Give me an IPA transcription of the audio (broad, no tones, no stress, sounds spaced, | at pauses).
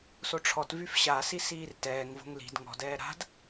s o ʈ͡ʂʰ ɔ t v y f ɕ a s i s iː r t ɛː ŋ v o̤ ŋ l i̤ d ŋ ɔ̤ d ɛː ɾ a̤ d